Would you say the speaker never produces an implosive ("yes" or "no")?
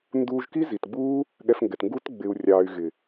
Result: no